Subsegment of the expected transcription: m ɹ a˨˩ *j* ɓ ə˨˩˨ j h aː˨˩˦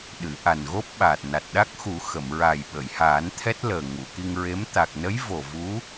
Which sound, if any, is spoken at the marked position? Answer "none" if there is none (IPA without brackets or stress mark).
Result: j